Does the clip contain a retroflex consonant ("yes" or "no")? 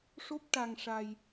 yes